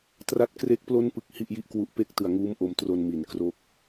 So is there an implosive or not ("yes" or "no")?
no